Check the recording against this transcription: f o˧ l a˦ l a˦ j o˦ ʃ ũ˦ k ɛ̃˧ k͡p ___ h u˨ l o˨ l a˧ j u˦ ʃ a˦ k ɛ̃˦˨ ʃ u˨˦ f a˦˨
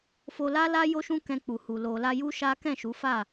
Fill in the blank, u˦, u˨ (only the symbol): u˨